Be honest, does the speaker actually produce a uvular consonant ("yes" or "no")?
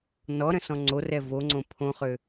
yes